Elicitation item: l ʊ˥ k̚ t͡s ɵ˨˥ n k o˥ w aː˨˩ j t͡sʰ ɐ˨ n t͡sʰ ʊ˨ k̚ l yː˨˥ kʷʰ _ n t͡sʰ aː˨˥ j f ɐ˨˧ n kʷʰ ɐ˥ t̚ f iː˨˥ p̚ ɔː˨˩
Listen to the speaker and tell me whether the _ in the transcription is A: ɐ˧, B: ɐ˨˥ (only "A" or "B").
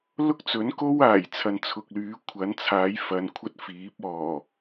B